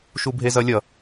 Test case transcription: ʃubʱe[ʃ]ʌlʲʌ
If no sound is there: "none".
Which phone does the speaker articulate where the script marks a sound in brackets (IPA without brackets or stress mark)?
z